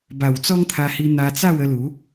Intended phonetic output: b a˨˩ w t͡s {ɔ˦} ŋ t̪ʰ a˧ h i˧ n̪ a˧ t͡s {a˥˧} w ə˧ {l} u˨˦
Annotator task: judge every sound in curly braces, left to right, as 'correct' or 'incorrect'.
correct, correct, correct

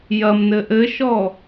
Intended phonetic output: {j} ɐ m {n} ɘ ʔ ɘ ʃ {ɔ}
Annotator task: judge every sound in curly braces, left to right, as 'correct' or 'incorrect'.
correct, correct, correct

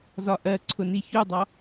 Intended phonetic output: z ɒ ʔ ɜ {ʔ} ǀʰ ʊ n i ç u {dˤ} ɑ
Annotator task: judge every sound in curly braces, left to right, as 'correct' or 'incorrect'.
incorrect, correct

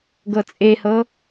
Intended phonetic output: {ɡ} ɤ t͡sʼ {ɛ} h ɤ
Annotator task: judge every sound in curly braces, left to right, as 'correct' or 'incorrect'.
correct, incorrect

